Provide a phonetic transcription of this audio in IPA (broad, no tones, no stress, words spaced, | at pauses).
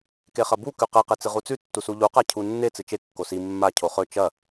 keχɐbu kʉqe qet͡sɨʁut͡sʉ tːusuʎu qacʰunːe t͡sɨt͡ʃe kːosi mːa cʰoχɵ t͡ʃɐ